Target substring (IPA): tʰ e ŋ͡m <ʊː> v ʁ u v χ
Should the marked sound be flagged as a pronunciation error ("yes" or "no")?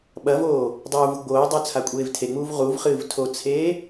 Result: yes